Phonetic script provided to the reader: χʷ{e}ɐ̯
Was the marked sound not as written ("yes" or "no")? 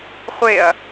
no